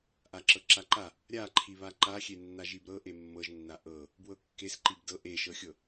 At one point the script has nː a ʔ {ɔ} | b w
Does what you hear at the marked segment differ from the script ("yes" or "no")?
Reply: yes